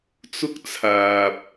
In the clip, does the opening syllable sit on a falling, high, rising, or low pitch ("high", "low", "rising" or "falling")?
high